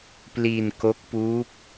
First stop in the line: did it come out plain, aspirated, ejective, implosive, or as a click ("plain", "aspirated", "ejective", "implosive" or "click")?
plain